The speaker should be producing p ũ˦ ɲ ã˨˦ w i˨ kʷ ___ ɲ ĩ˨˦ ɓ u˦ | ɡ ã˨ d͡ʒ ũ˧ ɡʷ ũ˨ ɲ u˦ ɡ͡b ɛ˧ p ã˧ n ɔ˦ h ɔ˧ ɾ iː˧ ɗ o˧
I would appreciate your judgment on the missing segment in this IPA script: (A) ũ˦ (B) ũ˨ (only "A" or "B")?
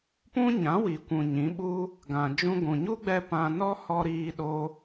B